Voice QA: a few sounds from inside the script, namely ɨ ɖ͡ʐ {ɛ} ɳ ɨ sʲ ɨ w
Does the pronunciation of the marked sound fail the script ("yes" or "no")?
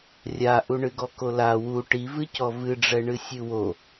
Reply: no